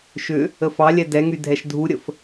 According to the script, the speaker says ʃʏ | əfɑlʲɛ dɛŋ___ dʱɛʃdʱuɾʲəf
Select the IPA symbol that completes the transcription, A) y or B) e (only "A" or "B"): A